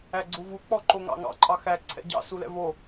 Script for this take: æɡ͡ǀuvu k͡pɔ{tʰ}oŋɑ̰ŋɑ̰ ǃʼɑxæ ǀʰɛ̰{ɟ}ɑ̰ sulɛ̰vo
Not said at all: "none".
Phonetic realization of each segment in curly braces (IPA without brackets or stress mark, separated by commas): ǃ, ɟ